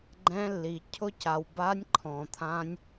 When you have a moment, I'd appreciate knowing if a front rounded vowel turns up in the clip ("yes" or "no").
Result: no